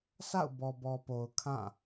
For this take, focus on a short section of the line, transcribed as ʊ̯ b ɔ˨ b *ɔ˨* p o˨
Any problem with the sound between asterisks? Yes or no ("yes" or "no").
no